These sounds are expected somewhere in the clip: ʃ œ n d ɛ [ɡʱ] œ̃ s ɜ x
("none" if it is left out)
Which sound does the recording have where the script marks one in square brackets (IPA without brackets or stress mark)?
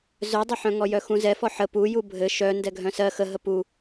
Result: ɡʱ